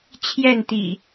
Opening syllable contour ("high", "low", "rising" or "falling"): falling